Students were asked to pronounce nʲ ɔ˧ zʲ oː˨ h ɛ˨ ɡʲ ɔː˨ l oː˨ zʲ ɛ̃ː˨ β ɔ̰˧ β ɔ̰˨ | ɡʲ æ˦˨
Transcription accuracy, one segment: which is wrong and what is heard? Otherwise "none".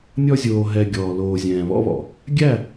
h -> ɦ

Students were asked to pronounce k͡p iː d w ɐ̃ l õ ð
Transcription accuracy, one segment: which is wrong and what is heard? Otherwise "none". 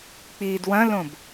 ð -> b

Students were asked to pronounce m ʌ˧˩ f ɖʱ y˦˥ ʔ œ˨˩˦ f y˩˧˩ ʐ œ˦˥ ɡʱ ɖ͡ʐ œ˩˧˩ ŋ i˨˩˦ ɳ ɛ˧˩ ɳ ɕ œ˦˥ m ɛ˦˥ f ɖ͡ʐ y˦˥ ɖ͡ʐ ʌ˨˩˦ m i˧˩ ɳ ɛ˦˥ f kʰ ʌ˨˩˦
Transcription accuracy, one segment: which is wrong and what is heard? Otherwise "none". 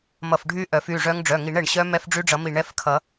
ɡʱ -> ŋ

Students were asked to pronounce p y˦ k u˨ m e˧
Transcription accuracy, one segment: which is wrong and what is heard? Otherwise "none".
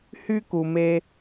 p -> h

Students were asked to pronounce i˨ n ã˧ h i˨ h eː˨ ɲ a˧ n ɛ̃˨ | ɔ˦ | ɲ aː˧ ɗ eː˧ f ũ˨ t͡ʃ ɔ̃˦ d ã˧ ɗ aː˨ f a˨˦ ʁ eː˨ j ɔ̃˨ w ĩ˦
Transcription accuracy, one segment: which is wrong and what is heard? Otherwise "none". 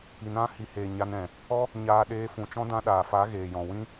ʁ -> ɣ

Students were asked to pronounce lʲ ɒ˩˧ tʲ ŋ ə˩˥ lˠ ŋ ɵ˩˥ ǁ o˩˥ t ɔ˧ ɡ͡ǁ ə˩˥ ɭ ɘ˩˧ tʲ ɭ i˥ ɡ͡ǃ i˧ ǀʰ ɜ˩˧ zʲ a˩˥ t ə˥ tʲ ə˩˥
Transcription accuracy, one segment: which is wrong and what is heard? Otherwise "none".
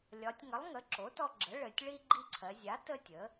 ɵ˩˥ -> ə˩˥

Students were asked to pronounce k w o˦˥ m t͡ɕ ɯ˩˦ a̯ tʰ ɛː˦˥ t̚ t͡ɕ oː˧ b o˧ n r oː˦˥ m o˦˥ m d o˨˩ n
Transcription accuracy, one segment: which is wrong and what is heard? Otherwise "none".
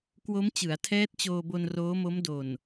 none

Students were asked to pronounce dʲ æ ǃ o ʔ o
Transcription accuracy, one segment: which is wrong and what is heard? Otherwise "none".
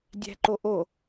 æ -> æ̤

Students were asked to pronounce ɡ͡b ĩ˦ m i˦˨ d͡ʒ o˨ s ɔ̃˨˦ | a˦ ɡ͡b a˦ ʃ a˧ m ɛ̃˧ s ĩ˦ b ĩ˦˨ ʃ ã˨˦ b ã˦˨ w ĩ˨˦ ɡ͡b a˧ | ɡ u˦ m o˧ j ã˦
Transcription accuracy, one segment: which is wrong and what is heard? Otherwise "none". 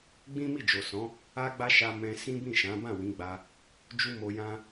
ɡ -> d͡ʒ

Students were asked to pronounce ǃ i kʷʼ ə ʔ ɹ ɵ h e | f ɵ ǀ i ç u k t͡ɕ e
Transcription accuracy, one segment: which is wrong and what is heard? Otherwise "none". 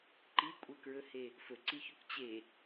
ʔ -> k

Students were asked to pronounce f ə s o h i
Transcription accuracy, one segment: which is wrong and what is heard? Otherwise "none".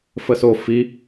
h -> f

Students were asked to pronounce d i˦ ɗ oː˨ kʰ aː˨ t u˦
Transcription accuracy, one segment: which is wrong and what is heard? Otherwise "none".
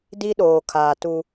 none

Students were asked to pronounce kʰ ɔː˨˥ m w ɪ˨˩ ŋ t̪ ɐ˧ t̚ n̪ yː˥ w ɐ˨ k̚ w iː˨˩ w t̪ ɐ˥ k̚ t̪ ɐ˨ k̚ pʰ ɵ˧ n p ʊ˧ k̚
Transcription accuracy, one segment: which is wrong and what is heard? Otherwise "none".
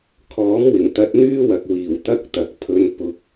none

